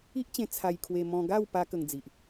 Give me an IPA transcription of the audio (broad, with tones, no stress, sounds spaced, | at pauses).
i˦ ʔ t͡ɕ ẽ˧ t͡sʰ a˧ j kʰ w e˧ m ɔ̃˧ ɡ a˥˧ w p a˦ k ə˧ ŋ d͡z i˨ ʔ